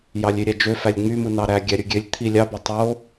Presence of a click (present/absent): absent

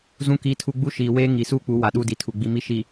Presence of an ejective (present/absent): absent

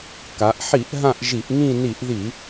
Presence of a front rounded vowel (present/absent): absent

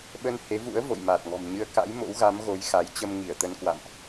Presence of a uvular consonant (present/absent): absent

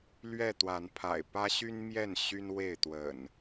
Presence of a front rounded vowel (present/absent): present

